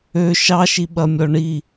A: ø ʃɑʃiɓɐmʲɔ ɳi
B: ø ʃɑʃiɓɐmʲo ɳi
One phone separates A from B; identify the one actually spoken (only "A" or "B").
A